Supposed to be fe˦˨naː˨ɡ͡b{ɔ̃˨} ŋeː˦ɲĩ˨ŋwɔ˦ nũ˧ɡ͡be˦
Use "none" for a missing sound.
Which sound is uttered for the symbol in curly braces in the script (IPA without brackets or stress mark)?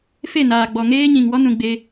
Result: ɔ˨